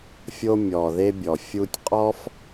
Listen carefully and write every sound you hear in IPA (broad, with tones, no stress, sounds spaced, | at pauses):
fʲ o˦ mʲ ɔ˧ ð e˦ bʲ ɔ˧ fʲ u˦ tʲ qʼ ɔ˦ f